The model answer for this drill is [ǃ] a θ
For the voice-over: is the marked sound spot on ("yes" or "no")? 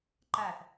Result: yes